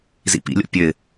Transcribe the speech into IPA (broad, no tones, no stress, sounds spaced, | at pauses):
z ḭ p ḭ lʲ o̰ pʲ ø ɪ̯